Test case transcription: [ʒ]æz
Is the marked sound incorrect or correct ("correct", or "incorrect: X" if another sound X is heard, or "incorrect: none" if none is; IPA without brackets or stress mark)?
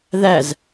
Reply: incorrect: ð